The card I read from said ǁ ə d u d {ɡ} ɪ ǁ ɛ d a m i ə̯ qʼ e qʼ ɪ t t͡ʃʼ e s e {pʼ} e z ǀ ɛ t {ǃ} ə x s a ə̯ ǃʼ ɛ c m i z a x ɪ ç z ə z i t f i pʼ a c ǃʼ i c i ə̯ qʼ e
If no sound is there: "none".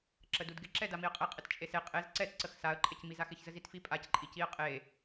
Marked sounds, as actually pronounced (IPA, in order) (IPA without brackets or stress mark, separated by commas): ɡ, qʼ, ǀ